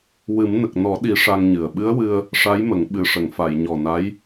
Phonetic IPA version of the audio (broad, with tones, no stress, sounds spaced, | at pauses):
w ɨ˨˩˦ m n ə˨˩ k̚ n ɔ˨˩˦ ɗ i˨˩˦ ʂ a˧ ŋ ɲ ɨ˨˩ ə̯ ɓ ɨ˧˥ ə̯ w ɨ˧ ə̯ | ʂ a˧˥ j m ə˨˩˦ ŋ ɓ ɨ˨˩ ʂ ə˨˩˨ ŋ f a˨˩˨ j ɲ ɔ˨˩ n a˧˥ j